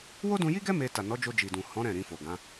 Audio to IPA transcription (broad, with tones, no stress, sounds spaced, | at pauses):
w o˦ d ũ˧ j i˦ ɡ ɛ˦ m e˧ t a˨ n ɔ˨˦ d͡ʒ o˧ d͡ʒ i˨ d ũ˨ h ɔ̃˨˦ ɾ ɛ̃˦˨ ɾ ĩ˧ f o˨ ɡ ã˨˦